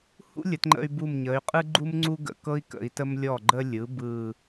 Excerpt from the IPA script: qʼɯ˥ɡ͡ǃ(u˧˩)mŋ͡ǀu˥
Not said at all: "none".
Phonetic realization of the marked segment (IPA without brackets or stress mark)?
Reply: u˥